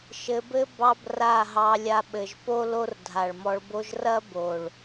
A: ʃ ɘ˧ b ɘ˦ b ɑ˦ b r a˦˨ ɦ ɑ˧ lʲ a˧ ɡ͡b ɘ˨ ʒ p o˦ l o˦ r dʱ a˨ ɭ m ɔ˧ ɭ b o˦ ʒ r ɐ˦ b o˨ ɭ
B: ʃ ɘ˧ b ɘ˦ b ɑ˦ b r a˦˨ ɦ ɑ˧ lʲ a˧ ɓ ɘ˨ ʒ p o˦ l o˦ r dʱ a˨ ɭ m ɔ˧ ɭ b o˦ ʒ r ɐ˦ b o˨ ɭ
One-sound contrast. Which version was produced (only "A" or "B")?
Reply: B